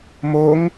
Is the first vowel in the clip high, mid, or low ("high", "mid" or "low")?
mid